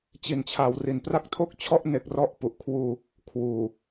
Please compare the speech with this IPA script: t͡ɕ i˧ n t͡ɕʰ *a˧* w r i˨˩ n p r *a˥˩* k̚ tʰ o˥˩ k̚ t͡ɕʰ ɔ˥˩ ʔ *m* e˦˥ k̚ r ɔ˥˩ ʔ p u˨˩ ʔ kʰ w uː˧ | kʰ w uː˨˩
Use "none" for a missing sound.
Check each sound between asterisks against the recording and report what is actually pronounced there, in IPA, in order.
a˧, a˥˩, n

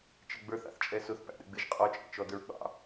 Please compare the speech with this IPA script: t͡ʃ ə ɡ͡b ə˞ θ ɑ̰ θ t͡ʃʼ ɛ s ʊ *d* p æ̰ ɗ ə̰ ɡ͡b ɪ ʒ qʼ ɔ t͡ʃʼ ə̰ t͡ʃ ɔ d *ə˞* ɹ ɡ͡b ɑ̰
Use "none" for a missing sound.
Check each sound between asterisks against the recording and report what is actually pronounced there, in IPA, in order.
θ, ə˞

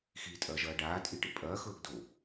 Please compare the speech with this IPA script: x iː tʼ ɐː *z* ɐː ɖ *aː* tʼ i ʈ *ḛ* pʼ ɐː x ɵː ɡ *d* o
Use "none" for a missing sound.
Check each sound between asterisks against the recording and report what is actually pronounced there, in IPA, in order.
ʒ, aː, ḛ, d

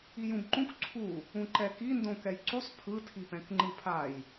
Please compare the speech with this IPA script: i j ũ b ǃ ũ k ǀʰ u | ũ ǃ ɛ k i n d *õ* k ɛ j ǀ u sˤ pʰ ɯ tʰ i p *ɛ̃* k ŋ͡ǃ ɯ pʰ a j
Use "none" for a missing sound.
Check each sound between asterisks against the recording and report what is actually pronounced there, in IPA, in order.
õ, ɛ̃

